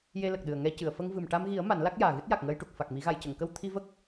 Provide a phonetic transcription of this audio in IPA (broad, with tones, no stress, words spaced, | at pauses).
je˧lə˨˩k̚ɗɨ˨˩ə̯ ŋɛ˧cɨ˨˩˨ə̯ fə˧ŋvɨ˨˩m ʈa˧mɣi˨˩˦ə̯ ma˨˩˦nla˦˥k̚jaː˨˩ɣɨ˦˥t̚ ja˨˩k̚ŋəː˧jʈu˨˩k̚ fa˨˩k̚mi˨˩˦ɣa˨˩˨j cə˨˩˨ŋkə˧w t̪ʰi˧və˦˥k̚